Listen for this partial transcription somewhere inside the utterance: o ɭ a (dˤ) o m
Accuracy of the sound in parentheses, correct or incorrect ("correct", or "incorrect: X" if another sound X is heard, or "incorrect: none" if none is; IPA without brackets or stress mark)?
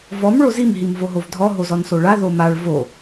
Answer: incorrect: ð